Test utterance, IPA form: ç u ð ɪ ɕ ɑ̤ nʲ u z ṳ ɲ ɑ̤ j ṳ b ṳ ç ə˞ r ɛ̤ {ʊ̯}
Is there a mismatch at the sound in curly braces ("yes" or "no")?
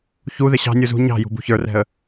yes